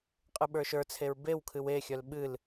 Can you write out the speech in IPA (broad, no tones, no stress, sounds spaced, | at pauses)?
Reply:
qʼ ɨ ɓ ə˞ ʃ ə˞ t͡sʰ e ɹ b e w kʰ ɨ w e xʲ œ l ɓ ɨ l